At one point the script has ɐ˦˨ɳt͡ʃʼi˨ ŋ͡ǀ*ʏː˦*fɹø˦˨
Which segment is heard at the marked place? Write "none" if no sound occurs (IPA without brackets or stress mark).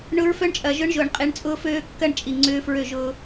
ʏː˦